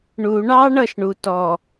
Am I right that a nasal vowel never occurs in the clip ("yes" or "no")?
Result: yes